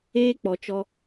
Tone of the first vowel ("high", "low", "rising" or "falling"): high